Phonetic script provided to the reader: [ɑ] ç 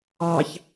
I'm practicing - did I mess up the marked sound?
no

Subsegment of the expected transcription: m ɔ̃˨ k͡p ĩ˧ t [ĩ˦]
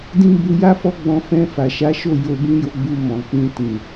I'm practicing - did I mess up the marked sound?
yes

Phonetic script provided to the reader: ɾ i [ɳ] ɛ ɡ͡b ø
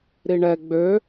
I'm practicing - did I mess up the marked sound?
no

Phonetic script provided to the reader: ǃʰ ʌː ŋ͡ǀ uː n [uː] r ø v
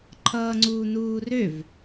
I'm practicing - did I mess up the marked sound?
no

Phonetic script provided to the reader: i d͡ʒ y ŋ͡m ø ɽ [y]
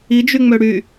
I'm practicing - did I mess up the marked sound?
no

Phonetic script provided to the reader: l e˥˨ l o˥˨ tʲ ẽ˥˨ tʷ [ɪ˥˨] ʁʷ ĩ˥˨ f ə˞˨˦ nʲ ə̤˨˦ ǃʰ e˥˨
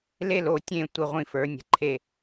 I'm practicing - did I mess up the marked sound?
no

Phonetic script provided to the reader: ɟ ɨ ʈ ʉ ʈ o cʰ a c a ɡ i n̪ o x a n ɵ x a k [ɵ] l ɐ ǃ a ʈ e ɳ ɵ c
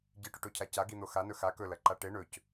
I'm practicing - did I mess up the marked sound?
no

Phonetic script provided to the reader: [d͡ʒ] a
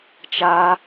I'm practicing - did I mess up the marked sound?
yes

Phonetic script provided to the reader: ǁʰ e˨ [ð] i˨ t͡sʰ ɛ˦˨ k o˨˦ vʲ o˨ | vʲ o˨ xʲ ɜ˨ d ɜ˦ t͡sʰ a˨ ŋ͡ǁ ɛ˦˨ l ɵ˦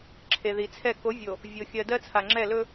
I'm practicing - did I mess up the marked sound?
no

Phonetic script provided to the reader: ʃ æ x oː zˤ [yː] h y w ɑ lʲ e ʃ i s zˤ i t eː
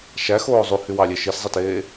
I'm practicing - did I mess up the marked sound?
yes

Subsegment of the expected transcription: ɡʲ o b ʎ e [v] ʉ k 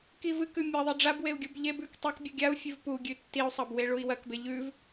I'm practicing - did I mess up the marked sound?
yes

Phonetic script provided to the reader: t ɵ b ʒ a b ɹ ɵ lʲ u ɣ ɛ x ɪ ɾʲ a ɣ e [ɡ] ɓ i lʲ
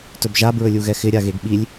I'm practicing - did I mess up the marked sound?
no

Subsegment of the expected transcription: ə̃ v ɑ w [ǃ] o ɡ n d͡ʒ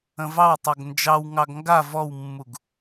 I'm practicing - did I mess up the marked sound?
yes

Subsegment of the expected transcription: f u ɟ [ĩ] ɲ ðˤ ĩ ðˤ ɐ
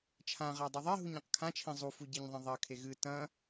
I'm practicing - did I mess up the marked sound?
yes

